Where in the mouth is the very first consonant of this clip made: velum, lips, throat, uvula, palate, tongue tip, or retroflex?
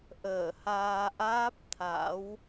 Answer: throat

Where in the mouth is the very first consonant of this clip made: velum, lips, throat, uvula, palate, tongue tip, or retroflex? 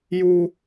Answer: palate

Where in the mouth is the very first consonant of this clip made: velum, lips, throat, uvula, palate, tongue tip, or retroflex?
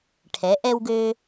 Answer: retroflex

